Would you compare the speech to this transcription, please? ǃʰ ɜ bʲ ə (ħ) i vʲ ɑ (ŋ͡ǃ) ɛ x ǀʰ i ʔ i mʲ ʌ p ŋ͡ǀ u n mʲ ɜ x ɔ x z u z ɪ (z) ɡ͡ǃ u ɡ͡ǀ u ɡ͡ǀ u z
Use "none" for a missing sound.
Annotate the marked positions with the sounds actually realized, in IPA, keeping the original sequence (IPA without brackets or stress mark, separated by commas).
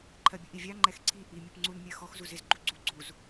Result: ʔ, ŋ͡ǃ, z